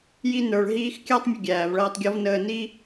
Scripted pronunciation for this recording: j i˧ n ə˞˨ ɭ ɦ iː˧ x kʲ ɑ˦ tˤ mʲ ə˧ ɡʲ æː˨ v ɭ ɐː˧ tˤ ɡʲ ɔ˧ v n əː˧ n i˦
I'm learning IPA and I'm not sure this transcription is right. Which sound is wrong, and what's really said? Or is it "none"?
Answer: none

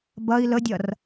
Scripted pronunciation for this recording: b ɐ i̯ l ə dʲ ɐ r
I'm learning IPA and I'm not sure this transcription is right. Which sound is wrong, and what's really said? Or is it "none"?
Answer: none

